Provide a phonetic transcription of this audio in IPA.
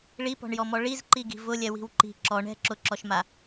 ɭ i p ɔ̤ ɳ j ɔ m ɔ ɭ i z ǃ i ɡ i̤ v ʊ lʲ ɛ w i̤ w ǃ i̤ ǁ ɔ ɳ ɛ̤ ǁ ʊ ǁ ɔ ʃ m a

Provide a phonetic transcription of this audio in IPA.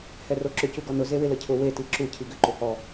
h ɛ r o ǁ ʏ c u ɡ ɔ n ʊ z e w ɪ l ə cʰ ʊ w e t i ǁ u cʰ i ɡ ʏ ǃ ʏ h ɔ

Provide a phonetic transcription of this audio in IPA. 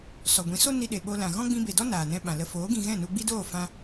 s ɔ˨ ɡʷ ĩ˨˦ s o˦ n i˧ ɗ e˨ ɓ o˧ l ã˨ ɣ ɔ̃˦ ɡ͡b ĩ˧ b e˨ d ɔ˦ n aː˨ n ɛ̃˧ ɓ ã˨ l ə˧ f oː˨˦ ɡ ĩ˧ ɣ ɛ̃˦˨ n u˧ ɡ͡b i˦ d oː˦˨ f ã˧

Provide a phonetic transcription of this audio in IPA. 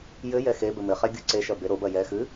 j ɘ j ɛ x e b ɘ m ɘ χ ɛ ɡʲ u ǀ e ʃ ɐ b e ɾ o b ɐ j ɛ x ɨ

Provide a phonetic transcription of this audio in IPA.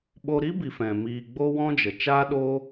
ɓ o˧ ɾ i˦ b i˨ f ɛ̃˨ m iː˧ ɡ͡b o˦ w ɔ̃˦ d͡ʒ ə˨ t͡ʃ aː˦ ɗ oː˦

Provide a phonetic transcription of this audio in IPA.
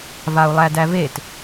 v a u̯ lˠ æ d æ v e t

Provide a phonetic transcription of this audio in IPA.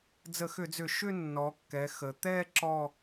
d͡z ə˧˩˧ x ʏ˧˩˧ d͡z ʏ˧˩˧ ʃ ʏ˥˧ nː ɔ˩˧ kː ɛ˩˧ x ə˩˧ t̪ ɛ˥˧ ǁ ɔ˥˧

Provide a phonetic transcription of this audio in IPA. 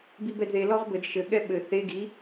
b i b ɛ d ð e l ɔ ʁ b ɘ d ʃ ɘ ɠ ɛ ɓ ɘ θ e ɡ i

